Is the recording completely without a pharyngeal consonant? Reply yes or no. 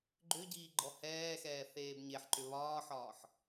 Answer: no